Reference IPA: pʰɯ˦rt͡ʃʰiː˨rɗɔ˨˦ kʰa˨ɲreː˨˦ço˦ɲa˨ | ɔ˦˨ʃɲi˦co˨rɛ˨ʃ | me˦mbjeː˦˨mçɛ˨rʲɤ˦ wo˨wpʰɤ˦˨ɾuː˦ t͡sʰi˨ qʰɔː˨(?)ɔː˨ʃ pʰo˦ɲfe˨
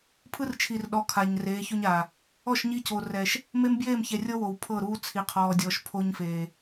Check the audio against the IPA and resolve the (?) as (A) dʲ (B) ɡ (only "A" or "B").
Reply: A